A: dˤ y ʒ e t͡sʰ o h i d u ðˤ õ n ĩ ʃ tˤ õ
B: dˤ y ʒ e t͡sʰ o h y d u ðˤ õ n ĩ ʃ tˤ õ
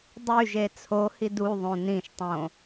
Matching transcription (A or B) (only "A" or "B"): A